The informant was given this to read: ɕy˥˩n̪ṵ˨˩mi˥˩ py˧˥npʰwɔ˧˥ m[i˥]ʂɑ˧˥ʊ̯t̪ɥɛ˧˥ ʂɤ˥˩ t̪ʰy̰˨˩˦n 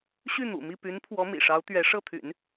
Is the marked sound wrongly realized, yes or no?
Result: yes